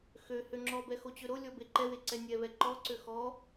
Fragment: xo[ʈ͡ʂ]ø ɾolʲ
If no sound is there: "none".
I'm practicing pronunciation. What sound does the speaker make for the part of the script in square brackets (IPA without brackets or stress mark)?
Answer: t͡ɕ